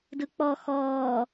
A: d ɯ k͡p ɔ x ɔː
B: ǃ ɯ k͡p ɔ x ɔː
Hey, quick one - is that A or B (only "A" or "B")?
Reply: A